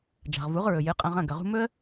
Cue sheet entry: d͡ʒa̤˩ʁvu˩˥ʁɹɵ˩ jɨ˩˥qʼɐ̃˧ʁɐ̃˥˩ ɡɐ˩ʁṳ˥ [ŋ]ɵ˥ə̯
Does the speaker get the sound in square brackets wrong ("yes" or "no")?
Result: yes